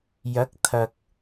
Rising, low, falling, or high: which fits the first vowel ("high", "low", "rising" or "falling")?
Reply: rising